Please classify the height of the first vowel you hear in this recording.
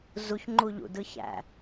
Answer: high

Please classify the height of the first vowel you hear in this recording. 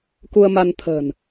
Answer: high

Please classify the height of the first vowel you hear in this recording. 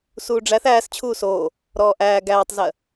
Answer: high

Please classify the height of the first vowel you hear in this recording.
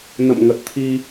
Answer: mid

